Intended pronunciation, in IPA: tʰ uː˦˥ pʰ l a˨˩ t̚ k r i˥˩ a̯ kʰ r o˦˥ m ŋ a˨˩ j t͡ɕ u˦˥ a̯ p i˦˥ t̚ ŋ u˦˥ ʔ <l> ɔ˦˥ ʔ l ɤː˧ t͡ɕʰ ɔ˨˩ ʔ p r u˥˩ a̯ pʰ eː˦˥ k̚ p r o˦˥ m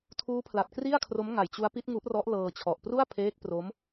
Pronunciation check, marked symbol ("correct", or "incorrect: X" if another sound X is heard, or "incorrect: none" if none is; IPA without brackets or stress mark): incorrect: r